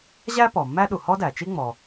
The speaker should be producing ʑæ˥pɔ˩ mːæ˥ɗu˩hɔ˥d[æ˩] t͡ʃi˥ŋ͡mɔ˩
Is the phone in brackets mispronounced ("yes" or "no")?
no